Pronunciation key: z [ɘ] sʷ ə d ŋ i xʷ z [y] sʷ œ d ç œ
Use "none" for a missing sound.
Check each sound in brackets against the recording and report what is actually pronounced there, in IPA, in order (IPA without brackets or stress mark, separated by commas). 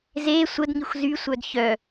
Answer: e, y